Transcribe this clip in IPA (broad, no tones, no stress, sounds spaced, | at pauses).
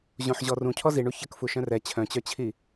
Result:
ʑ õ ħ ʑ ɔ r ũ cʰ ɔ z i ɳ u ç ə k f u ʃ œ̃ r ɛ t͡ɕʰ œ̃ t͡ɕ œ t͡ɕʰ i